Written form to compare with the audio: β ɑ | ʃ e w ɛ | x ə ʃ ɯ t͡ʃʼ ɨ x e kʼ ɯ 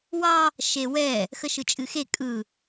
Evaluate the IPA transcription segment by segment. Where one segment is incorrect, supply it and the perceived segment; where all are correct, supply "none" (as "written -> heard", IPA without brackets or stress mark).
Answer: β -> w